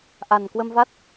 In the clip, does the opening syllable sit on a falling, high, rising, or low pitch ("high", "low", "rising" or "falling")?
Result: low